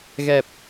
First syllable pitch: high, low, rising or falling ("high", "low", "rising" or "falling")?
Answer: low